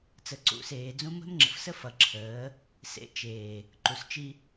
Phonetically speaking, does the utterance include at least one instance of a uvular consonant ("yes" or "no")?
no